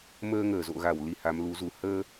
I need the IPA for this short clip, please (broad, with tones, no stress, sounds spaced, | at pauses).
m əː˧ ŋ əː˧˩ z o̰˧˨ ɣ a˧˩ w l i˧ h a˨˦ m l u˨˦ z u˨˦ h əː˧